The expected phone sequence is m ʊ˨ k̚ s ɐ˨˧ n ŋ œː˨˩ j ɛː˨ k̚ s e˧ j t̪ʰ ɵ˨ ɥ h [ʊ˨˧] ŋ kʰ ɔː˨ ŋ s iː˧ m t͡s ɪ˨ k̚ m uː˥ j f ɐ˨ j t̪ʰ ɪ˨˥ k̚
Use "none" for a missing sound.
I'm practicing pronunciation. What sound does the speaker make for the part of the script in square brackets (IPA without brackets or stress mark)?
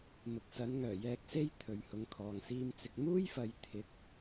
ʊ˨˧